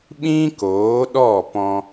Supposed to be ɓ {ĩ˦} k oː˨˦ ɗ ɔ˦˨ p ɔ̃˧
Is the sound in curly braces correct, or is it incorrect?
correct